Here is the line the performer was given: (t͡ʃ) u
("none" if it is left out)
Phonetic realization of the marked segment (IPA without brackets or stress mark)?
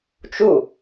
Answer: t͡ʃ